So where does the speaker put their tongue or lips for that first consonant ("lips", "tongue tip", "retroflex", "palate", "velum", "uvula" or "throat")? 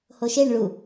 throat